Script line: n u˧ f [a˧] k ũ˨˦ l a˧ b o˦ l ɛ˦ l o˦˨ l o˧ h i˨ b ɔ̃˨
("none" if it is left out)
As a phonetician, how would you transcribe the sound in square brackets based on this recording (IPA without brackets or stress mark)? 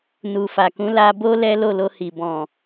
a˨